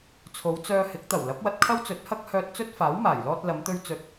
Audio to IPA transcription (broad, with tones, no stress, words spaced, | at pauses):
t͡sʰo˨˧wt͡sœː˧hɪ˨˥k̚ t̪ɐ˨˩wlɐ˨˥p̚wɐ˧t̚kʰɐ˥w t͡sɵ˨˥t̚hɐ˥k̚hœː˧t̚ t͡sɵ˥t̚faː˨˥wmaː˨˩j lɔː˧t̚lɐ˨˧mt̪ɵ˧ɥ t͡sɵ˨˥t̚